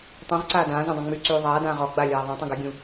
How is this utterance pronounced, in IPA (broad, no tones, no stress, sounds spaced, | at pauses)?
tˤ ũ ʁ ǀ aː d ãː z ũ dˤ ã ŋ͡m y ǀ yː ðˤ aː d ãː ʁ ɔ ɡ͡b a lʲ aː ðˤ ã tˤ ũ ɡ a ɡʲ ũ